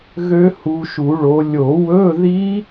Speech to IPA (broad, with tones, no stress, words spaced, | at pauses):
ɣø˦˥hu˨˦ʃu˨˩˦ɭo˨˦ lʲo˨˩˦wɵ˧˥˧ði˦˥